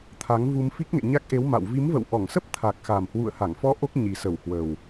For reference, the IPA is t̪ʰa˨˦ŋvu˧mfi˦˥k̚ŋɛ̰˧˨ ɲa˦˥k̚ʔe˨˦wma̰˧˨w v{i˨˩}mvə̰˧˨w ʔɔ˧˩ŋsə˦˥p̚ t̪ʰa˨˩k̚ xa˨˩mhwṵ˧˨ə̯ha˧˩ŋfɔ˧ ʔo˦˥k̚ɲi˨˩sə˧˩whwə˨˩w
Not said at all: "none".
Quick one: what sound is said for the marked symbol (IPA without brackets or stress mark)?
i˨˦